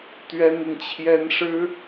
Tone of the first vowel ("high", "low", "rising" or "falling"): high